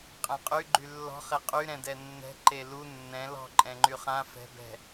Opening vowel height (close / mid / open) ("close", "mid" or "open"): mid